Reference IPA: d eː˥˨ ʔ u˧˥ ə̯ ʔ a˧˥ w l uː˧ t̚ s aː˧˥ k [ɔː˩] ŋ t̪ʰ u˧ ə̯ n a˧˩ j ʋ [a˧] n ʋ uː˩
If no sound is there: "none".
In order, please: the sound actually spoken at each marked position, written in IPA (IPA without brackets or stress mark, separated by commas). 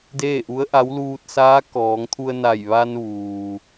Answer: ɔː˩˧, a˧